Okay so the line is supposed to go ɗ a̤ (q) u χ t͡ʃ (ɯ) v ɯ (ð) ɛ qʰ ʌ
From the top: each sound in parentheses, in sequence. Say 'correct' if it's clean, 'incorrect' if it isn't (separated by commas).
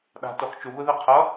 incorrect, incorrect, correct